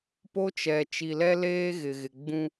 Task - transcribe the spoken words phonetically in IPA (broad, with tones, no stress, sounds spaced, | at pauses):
p o˦ t͡ʃ ɛ˨ t͡ʃ i˨ l ɛ˦ l eː˦ ɣ ɪ˨ ɣ ɪ˨ ɡ͡b ũ˦